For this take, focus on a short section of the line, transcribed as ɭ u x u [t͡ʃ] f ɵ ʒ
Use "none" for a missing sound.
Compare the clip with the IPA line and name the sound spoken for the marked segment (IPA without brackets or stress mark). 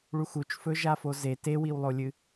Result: t͡ʃ